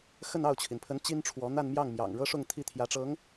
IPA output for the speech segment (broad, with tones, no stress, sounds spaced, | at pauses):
x ə˥˧ n ɑ˥˩ ʊ̯ t͡ɕʰ i˩ n pʰ ə˧˥ n t͡ɕ i˥ n ʈ͡ʂʰ w ɔ˧˥ n̪ a˥˧ n m j ɑ˥˩ ŋ m j ɑ̰˨˩ ŋ ɻ ɤ˥ ʂ ʊ˥˧ ŋ t̪ʰ i˥˩ t̪ʰ j ä˧˥ ʈ͡ʂ ɤ˧˥ ŋ